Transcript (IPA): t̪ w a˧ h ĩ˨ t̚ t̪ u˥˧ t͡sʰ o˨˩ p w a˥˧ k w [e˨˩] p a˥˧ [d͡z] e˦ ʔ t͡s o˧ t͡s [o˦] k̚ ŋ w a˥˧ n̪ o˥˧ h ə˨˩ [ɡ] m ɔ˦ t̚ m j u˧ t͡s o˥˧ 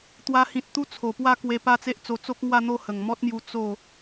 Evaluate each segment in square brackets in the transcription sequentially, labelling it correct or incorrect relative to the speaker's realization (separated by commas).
incorrect, incorrect, correct, incorrect